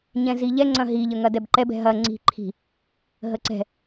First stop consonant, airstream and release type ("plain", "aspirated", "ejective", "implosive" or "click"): click